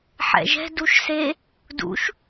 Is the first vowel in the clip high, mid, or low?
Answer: mid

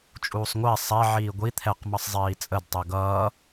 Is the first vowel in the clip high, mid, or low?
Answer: high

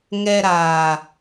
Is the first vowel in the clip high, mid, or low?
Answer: mid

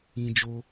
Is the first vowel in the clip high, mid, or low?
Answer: high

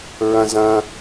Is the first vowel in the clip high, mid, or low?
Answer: low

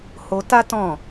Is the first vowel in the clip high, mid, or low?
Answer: mid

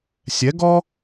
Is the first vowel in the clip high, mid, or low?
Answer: mid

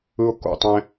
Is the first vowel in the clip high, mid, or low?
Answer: high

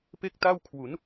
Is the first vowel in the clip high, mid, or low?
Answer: mid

